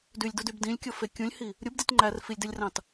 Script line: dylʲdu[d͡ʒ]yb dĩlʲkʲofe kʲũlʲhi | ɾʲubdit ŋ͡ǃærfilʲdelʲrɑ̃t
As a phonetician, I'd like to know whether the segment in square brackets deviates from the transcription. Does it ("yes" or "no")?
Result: yes